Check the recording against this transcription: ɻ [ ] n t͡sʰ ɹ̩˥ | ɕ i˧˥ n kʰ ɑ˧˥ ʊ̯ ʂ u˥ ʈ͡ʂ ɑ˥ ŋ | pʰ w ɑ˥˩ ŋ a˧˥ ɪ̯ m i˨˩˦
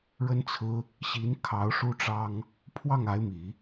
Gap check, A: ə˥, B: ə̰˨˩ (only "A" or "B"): A